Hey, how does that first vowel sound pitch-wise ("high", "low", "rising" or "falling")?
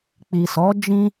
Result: low